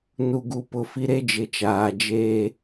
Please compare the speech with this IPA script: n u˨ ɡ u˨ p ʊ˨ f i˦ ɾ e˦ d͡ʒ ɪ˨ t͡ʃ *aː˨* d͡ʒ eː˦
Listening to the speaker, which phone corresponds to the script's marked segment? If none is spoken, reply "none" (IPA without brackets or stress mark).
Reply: aː˨